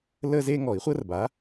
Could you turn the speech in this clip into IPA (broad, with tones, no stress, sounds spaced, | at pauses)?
l əː˥ z e˥ ŋ ɔ˨˩˦ i̯ χʷ əː˥ r b a˩˥